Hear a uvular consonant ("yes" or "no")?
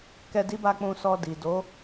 no